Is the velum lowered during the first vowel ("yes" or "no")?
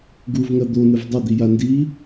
no